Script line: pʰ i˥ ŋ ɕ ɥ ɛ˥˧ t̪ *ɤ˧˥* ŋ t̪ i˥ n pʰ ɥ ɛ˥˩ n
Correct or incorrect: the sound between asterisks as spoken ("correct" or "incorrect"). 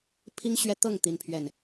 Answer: incorrect